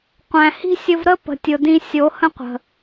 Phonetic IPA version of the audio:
qʷ æ̃˨ h i̤˦ sʲ ə˧ v ɾ ə˦ p ə̤˨ tʲ ʊ˨ d ĩ˧ sʲ o˨˦ h ə̃˦ qʷ ə̤˨

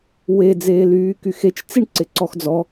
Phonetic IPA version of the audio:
w e d͡z eː l yː k y x e t͡ʃ t͡s i ɳ ǀ ɪ ǀ ɔ x d͡z ɔ

